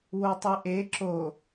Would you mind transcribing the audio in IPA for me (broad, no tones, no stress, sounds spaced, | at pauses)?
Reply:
w o tˤ i ʔ e ǁ o